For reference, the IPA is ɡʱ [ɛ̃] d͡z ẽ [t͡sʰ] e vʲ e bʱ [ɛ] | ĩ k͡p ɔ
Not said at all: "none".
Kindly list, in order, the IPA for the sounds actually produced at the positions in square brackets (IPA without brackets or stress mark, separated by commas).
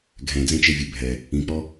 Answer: ɛ̃, t͡ʃ, ɛ